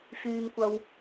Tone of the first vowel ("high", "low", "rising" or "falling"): high